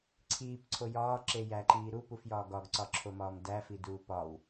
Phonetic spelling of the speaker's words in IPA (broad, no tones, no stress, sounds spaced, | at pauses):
ǀʰ iː p ǀʰ o j ɒː ǁ e j æ ǃ iː ɾ u p u f j ɒː ɡ ɒ ɡ ǀ ɒ ǁʰ o m ɒː m d æ f i d uː p ɒ w